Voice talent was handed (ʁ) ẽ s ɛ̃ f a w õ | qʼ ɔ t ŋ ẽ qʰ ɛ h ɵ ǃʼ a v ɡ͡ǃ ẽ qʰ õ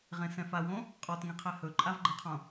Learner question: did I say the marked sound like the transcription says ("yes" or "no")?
yes